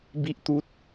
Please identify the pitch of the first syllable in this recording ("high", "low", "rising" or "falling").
high